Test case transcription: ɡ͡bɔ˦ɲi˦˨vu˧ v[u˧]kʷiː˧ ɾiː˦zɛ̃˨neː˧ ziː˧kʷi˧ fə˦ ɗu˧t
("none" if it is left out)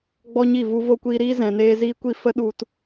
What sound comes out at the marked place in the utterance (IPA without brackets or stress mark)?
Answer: o˧